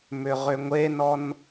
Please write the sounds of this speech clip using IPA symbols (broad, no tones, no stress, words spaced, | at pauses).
mʏʁʏŋʷenɔn